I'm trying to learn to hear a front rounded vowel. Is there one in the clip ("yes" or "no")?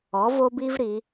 no